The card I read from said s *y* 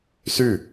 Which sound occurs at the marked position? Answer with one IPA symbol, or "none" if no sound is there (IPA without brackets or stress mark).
y